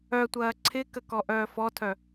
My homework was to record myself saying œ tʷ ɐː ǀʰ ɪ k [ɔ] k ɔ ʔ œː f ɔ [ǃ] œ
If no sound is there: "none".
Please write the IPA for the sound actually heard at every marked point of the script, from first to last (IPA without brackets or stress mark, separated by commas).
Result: ə, tʰ